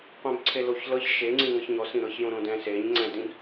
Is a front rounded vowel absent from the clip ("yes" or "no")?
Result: yes